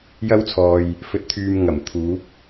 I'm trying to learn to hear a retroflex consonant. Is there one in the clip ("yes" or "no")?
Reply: no